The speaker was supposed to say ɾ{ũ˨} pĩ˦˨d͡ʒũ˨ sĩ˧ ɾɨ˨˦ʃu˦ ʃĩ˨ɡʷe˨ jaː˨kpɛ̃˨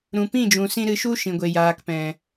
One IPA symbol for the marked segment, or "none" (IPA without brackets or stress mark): ũ˨